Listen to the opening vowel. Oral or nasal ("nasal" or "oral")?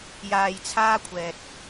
oral